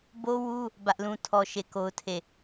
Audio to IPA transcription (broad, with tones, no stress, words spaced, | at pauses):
bo˦wu˦ | bä˦ʔlũ˦tʰɔ˦ ʃe˦˨ko˦ʊ̯tʰe˦˨